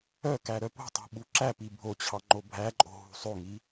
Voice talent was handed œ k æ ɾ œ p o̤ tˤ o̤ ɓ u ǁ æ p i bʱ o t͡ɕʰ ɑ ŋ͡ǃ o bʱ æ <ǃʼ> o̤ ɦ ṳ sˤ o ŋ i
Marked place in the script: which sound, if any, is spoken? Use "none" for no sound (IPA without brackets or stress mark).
ǃʼ